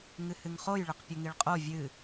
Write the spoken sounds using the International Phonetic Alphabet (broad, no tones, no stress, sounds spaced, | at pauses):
ŋ ɨ h ɨ ŋ χ o j ɭ ɪ q pʲ ʊ ŋ i ɭ qʼ o vʲ ɨ